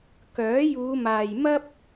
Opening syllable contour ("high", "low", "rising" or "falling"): rising